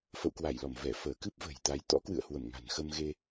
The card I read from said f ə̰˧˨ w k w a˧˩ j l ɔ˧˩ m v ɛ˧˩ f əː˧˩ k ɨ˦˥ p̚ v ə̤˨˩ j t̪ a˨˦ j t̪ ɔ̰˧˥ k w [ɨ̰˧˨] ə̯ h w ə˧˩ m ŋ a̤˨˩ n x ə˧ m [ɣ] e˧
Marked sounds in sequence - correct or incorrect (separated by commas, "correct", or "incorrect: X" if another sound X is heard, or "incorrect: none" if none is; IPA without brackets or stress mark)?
correct, correct